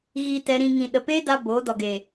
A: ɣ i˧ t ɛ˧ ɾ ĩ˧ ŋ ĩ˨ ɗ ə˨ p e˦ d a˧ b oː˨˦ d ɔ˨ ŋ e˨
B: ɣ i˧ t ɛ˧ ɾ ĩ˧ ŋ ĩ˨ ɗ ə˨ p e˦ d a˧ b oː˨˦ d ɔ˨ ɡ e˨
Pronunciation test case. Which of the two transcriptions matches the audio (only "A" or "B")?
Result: B